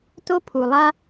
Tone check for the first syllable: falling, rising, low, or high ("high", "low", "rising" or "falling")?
high